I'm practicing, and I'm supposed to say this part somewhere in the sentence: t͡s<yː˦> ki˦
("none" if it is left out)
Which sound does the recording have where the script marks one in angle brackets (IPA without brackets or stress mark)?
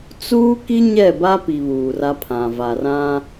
uː˦